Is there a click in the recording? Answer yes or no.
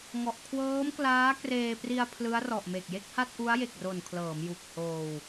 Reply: no